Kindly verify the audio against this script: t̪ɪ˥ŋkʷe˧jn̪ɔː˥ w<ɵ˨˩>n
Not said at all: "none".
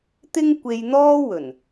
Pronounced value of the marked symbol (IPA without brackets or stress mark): ɵ˨˩